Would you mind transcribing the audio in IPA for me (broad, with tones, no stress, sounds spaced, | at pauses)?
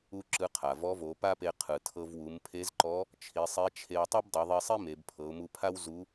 u˥ ǁ ɯ˧˥ qʰ a˩ v ɔ˧˥ v o˩˧ p a˥ p e˧ qʰ ɯ˩ tʰ ɤ˧ v w u˩˧ m pʰ e˧˥ z ǃ ɔ˧˥ | t͡ʃʰ i˩˧ sˤ e˧˥ t͡ʃʰ e˧ w tˤ o˥ b dˤ ɯ˩˧ ðˤ i˧ sˤ i˥ m e˩˧ b pʰ ɤ˩˧ ʊ̯ m u˧ pʰ a˥ w z u˧˥